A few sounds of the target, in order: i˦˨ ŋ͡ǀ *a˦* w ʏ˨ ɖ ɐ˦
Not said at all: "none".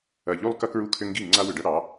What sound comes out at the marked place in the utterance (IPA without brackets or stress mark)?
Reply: a˦